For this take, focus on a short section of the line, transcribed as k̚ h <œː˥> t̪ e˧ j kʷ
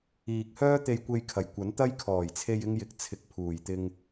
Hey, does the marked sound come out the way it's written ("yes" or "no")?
yes